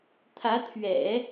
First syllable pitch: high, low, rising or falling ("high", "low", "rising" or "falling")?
rising